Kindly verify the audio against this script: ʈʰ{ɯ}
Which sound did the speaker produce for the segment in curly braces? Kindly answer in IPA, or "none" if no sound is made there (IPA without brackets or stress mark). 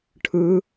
ɯ